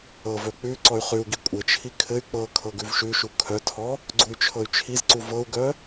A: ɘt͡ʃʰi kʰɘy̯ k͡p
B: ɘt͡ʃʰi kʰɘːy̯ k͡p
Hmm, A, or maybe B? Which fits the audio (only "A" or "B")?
A